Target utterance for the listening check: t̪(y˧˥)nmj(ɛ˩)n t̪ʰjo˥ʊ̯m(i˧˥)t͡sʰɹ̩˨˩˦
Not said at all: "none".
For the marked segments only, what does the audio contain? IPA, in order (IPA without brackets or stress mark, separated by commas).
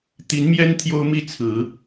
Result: i˧˥, ɛ˥, i˥˩